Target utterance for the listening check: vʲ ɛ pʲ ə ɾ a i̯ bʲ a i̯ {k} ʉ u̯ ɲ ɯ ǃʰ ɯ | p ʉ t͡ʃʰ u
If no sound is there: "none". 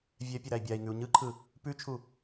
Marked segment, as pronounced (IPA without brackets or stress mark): ŋ